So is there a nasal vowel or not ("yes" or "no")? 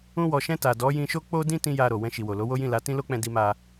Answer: yes